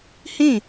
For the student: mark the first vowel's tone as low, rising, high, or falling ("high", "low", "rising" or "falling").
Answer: falling